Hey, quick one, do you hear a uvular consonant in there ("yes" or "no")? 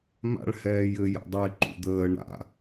no